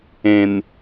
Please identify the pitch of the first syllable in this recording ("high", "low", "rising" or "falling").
low